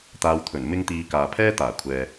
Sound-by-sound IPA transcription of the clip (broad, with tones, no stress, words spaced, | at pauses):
t̪aː˧wt̪ʰɵ˨˩n mɪ˧ŋt̪iː˨ kaː˨pʰɛː˥ t̪aː˨˩kʷʰɛː˨